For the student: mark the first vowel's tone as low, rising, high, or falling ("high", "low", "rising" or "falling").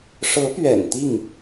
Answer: rising